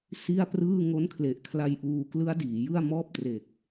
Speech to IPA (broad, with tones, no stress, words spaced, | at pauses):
si˥˩a̯prɯː˥˩ ŋo˦˥nkʰle˨˩ʔkʰla˧j ʔuː˧klɯ˦˥a̯ diː˩˦ jɯ˥˩a̯ mɔː˥˩p̚tre˨˩k̚